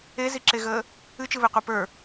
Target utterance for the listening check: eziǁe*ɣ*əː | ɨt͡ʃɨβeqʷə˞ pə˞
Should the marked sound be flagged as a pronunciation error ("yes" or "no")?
no